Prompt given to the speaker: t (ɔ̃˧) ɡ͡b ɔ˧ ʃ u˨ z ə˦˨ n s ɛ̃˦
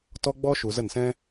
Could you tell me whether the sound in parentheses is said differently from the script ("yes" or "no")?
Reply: yes